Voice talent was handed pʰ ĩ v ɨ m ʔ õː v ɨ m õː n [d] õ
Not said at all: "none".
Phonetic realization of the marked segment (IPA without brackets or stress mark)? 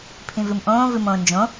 d͡ʒ